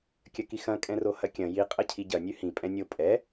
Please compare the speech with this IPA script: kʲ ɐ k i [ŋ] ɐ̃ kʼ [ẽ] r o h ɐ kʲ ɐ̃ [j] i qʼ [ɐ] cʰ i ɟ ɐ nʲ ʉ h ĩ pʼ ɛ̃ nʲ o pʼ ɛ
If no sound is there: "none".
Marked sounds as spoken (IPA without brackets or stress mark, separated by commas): x, ɛ̃, j, ɐ